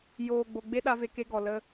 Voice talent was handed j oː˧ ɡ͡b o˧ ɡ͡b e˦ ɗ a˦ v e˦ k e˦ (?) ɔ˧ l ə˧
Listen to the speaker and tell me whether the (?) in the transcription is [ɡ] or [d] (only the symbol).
ɡ